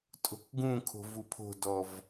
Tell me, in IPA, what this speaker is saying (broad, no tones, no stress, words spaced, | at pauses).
tʼo̤kɡũkʰo̤ vupʰo̤dɔv